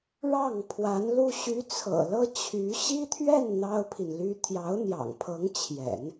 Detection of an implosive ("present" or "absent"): absent